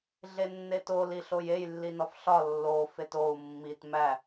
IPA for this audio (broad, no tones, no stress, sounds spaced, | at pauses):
ɮ e nː e t o l i ɬ o j e j lː i n ɒ f ɬ ɒ lː o f e t o u̯ mː i t m æ